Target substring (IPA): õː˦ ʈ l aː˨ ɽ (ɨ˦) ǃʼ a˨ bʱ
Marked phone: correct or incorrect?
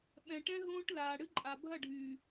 correct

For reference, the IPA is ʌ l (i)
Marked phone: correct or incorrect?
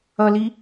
correct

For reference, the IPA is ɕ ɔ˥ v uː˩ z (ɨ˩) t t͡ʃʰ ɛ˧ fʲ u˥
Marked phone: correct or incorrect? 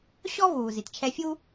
incorrect: i˩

